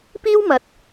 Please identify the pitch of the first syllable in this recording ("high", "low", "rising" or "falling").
high